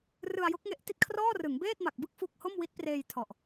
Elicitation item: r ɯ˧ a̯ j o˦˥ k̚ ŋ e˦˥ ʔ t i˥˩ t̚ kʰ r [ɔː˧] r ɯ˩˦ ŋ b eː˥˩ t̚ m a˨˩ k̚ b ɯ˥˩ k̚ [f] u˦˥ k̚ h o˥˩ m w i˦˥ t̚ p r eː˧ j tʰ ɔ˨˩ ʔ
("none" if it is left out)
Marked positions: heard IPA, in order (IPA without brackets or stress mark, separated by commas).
ɔː˥˩, f